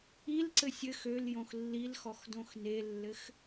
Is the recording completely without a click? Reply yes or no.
no